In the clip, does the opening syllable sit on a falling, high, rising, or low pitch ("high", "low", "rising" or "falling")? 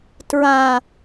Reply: high